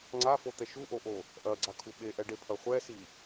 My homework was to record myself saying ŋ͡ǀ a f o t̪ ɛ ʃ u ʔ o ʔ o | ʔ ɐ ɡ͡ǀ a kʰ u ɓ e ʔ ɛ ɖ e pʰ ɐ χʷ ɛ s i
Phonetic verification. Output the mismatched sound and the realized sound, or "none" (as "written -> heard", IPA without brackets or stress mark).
none